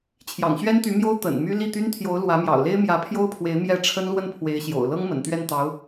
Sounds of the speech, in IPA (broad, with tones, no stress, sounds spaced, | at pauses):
t͡ɕʰ j ɑ̰˨˩ ŋ ɕ ɥ ɛ˥ n t̪ y˧˥ m j o˥ ʊ̯ t̪ ə̰˨˩ n m y˥ l i˥˩ t̪ y˥ n t̪ʰ j o˧˥ ʊ̯ l w ä˧˥ m j ɑ̰˨˩ ʊ̯ l e˥ ɪ̯ m j ä˧˥ pʰ j o˥ ʊ̯ pʰ w e˧˥ ɪ̯ m j ɛ˥˩ ʈ͡ʂʰ ə˥ n l w ə˥˩ n pʰ w e˧˥ ɪ̯ ɕ j o̰˨˩ ʊ̯ l ɤ˥ ŋ m ə̰˨˩ n t̪ ɥ ɛ˥˩ n t̪ ɑ˧˥ ʊ̯